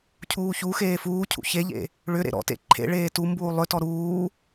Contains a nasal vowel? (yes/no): no